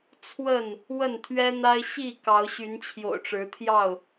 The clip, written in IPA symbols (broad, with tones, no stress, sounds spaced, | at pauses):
t͡sʰ w ə˥˨ n | w ə˥˨ n t̪ʰ ɥ ɛ˦ n̪ a˦ ɪ̯ ɕ i˥˨ k ɑ˨˦ ʊ̯ ɕ y˨˦ n t͡ɕʰ j o̰˨˩ ʊ̯ ʈ͡ʂ ɻ̩˨˦ t̪ʰ j ɑ˥˨ ʊ̯